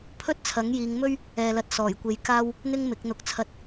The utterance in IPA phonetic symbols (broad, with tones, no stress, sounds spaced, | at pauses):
pʰ ɵ˥ t̚ t͡sʰ ɐ˨˥ ŋ j iː˨˧ ŋ m ɵ˥ ɥ | ɛː˨ l ɐ˨ t̚ s ɔː˨˩ j kʷ e˨˧ j k aː˥ w | n̪ ɪ˥ ŋ m ɪ˨˥ k̚ n̪ ʊ˧ k̚ t͡sʰ ɐ˧ t̚